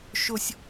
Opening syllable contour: high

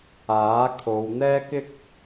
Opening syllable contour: rising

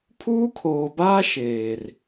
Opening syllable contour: high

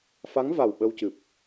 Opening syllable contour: rising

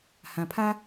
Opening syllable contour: low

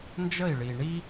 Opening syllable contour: falling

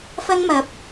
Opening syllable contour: high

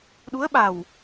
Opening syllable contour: rising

